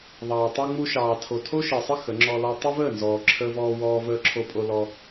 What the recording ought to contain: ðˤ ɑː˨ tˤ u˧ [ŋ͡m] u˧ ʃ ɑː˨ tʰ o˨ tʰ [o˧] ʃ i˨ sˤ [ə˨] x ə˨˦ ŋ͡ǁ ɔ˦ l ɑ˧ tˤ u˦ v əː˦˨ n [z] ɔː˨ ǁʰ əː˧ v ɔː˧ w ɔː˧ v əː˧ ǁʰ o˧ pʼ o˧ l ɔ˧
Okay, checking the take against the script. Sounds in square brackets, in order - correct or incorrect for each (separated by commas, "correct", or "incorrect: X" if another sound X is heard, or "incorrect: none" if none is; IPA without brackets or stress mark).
correct, incorrect: o˦, incorrect: ə˦, correct